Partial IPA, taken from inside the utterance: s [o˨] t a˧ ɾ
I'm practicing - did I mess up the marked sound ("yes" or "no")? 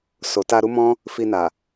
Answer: no